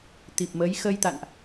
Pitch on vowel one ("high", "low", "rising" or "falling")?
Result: low